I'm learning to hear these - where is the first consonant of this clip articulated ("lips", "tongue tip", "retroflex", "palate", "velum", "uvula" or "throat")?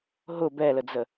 throat